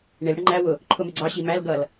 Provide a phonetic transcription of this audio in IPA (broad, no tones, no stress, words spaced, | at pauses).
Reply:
ɳɪl ɽəŋ͡ǃæ wʊ | ǃʰʊmɪɡ͡ǀɑ ɕimæl ɡʌl